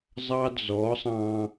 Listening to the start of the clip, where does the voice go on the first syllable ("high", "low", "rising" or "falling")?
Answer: high